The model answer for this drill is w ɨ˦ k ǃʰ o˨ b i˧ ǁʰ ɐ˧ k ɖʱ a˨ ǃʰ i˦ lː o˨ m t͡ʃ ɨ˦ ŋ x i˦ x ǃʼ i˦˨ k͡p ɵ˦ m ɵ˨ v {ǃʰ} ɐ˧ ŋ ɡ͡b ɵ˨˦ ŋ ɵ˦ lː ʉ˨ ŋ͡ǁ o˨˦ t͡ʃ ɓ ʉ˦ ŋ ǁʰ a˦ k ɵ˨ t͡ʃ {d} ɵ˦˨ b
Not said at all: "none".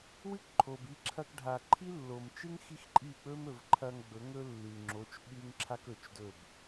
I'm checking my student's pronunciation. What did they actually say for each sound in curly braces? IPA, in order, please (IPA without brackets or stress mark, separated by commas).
ǃʰ, d